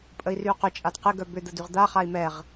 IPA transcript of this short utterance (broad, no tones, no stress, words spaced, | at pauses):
pʼəi̯ryu̯qʏt͡ʃʼad qɪɡœ bʏd̪ə dyʁd̪aχai̯ mɛʁ